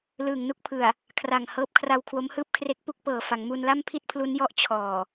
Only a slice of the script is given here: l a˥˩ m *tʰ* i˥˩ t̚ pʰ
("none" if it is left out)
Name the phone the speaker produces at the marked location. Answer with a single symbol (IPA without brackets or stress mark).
pʰ